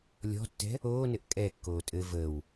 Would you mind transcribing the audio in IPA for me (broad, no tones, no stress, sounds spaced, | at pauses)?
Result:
lʲ ɔ̤ tː ɛ̤ | oː n ɘ ʔ kʼ ɛ kː oː tʼ ɘ v əː w